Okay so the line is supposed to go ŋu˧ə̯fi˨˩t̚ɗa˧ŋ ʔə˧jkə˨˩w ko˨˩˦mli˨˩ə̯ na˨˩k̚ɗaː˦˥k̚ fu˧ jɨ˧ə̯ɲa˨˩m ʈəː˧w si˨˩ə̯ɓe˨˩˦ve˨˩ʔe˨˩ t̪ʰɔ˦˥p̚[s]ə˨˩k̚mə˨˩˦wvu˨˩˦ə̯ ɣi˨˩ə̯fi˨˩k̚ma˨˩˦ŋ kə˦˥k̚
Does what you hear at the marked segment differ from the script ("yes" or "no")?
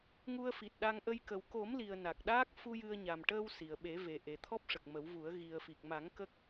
yes